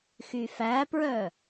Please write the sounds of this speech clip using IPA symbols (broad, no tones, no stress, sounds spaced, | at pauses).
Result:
x y f æ p ɹ œ